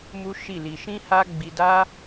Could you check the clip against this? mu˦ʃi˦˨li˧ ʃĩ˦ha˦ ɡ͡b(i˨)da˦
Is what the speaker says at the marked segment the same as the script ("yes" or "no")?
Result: no